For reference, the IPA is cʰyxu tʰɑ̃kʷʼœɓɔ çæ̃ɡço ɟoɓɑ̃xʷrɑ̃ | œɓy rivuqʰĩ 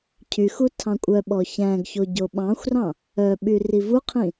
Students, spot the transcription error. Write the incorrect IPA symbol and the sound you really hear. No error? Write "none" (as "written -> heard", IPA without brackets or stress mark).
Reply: none